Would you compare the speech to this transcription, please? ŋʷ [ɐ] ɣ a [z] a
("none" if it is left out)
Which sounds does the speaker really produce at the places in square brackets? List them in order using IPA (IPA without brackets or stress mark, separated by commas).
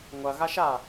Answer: ɐ, ʃ